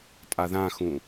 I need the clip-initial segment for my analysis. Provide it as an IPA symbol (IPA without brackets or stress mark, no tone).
tʼ